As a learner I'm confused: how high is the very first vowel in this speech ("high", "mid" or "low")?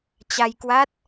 low